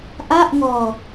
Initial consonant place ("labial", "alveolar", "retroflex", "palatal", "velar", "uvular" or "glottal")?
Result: glottal